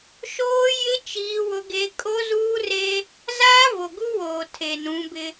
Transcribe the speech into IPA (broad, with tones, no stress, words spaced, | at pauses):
ʃoː˦ jɪ˦ t͡ʃiː˦wʊ˦ɡe˦ kʼo˦zuː˦re˦ | zaː˦vo˨ ɡu˦woː˨ tʰe˨nũ˨˦bɪ˦